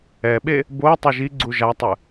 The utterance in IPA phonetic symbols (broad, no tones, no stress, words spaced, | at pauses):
ɛɓe | bo tˤɛʒiɡ͡ǀu ʒatˤɯ